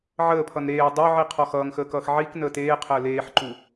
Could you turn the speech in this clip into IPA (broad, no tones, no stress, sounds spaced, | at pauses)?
ʕ əː pʰ ʌ n ɾ eː dˤ ø ʕ i qʰ ɔ x ʌː ŋ x əː k ʌː x ʕ i k n əː t eː qʰ əː l eː ħ ǃ u